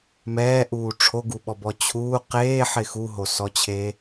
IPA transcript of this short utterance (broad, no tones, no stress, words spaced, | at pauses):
mɛːʔuː ʈ͡ʂʰoɡuɓɔbɔ t͡ɕʰuː qeːħɪ xuɦosɔt͡ɕʰeː